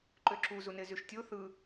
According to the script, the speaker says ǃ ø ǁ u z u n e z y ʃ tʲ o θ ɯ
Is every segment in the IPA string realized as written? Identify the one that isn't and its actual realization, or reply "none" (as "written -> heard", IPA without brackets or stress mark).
none